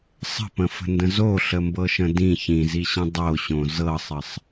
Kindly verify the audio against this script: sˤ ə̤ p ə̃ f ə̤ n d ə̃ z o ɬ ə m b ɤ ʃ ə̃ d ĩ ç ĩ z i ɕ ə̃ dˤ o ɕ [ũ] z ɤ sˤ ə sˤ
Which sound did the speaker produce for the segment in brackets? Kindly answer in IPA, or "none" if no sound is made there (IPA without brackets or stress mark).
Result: õ